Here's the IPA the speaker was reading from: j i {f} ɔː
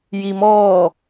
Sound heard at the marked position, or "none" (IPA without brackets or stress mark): m